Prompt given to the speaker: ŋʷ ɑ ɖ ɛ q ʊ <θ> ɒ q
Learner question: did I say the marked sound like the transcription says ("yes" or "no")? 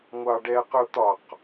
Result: no